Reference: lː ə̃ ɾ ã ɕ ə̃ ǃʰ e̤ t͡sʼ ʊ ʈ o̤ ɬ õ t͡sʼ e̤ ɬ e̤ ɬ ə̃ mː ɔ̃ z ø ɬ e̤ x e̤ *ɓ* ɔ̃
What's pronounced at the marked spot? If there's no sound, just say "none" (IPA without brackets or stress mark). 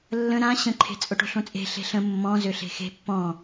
pː